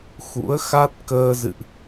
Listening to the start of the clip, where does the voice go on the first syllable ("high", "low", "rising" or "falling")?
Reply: rising